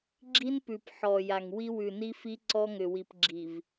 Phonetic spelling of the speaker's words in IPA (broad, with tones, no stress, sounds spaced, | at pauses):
ɡ͡ǁ i˦ n p ʉ˨ p ħ ɔ˨ j a˨ ŋ w i˦ w ʉ˨ n i˦ f i˦ ǀ ɔ˦ ŋ ʏ˨ w i˨ p ɡ͡ǁ i˨ v